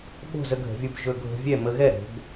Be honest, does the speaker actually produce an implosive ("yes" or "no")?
yes